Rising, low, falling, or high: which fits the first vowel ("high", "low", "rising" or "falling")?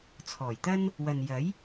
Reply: low